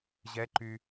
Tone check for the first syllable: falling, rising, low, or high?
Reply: rising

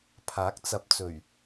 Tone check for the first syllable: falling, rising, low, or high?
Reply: rising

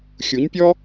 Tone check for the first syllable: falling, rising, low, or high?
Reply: rising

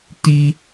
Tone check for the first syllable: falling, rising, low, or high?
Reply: high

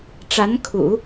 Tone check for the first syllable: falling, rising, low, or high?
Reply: rising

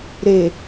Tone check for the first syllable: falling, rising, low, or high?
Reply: low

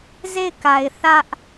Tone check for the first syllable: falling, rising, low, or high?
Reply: falling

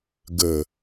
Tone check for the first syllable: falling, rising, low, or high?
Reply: low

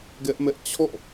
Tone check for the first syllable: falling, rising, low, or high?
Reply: high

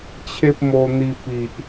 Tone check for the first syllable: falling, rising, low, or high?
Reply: high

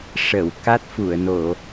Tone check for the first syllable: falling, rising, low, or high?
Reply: low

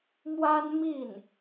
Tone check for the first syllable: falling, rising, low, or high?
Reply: high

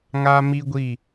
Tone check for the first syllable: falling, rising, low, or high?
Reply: high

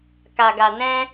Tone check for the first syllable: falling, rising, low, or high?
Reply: low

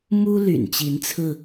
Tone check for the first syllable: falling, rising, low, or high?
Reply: high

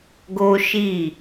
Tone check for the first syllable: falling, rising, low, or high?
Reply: high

